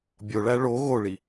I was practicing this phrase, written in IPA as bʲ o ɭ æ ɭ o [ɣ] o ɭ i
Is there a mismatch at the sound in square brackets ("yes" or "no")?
no